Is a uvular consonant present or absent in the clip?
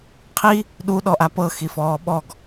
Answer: present